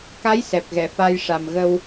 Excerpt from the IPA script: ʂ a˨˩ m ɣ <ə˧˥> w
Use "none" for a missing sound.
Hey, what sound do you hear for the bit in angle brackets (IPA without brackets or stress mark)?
ə˧